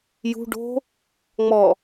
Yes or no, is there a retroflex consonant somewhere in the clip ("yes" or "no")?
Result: yes